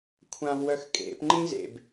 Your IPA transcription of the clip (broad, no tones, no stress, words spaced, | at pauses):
kʷʰãvwœxkʼḛpŋ͡ǃĩ zḛb